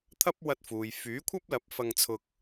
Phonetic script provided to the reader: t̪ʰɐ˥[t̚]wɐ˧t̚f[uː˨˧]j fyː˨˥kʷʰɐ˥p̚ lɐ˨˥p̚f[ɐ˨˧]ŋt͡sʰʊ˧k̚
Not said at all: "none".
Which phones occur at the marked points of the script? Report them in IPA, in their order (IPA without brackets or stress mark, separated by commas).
p̚, uː˨, ɐ˧